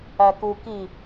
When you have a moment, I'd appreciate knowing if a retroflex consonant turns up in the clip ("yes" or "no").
no